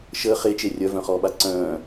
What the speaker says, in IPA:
ʃ əː χ e t͡ʃ e rʲ œ v œ̃ χ ɔː ɓ a ǀ œ̃ː

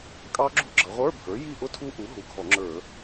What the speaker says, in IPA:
kʼ ɑ˦˥ ɡ͡ǁ ṳ˦˥ ɡ͡ǁ ʌ˩˧ ʁʷ ə˞˧˥˧ bʱ ə˞˩˥ j i˥˨ ʔ ʊ˥˨ tʰ u˦˥ ʔ u˩˥ ɦ u˩˧ ɡʱ ɔ˧˩˧ ŋ͡ǁ ə˞˧˩˧

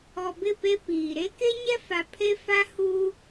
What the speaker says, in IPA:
ɔ˨ b ɪ˦˨ p e˦ p iː˨ ɾ e˦ k e˦ ɲ ɛ˦ f a˨ pʰ e˦ f a˦ h uː˦

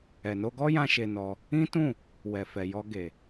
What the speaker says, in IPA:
ɛ˨ n o˧ ɡ ɔ˦ j ã˧ ʃ e˧ n ɔ˧ | ĩ˦ t ũ˦˨ | w ɛ˨ f ɛ˨ j ɔ˧ ɡ e˨

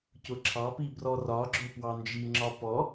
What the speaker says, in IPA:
c ʊ ǁʰ ɑ p i b r ɔ r ɒ ɡ͡ǁ ʊ p w ɑ n d͡ʒ i ŋ͡ǁ ɒ p ɔ

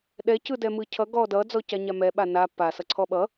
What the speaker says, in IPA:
ɗ ɛ c ɯ d ɛ m ɯ cʰ ʌ ɡ ɔ d ʌ d͡z ɔ c a ɲ a m ɛ ɓ a n a p a s ʌ ǀʰ ɔ ɓ ʌ

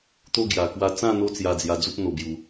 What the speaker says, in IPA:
t̪ o˧ ɡ j a˨˩ k w a˧ t͡s ã˥˧ n̪ o˦ t͡s j a˧ d͡z j a˧ d͡z u˦ p̚ n̪ o˧ b j u˧

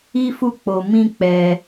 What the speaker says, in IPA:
i˦ f u˦˨ k͡p o˧ m ĩ˦ k͡p ɛ˧

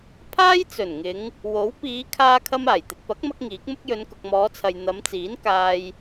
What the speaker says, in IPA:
pʰ aː˥ j t͡s ɵ˨˩ n ŋ ɪ˨˧ ŋ | w o˨˥ w p iː˨˧ kʰ aː˧ kʰ ɐ˧ m aː˨˩ j t̪ ɪ˨ k̚ p ɐ˨˥ k̚ m ɐ˥ k̚ ŋ iː˨˥ k̚ m ʊ˥ k̚ j ɵ˨˧ n k ʊ˨ k̚ m ɔː˨˧ t͡sʰ ɐ˨ j n̪ ɐ˨˧ m t͡s iː˨˥ n k aː˧ j

